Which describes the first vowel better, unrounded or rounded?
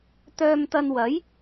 rounded